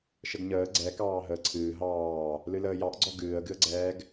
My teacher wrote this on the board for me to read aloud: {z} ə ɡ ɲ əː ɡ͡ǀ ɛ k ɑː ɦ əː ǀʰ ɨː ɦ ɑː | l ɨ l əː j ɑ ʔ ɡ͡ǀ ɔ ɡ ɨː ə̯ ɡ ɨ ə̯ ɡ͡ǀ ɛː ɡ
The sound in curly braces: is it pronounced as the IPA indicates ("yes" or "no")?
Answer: no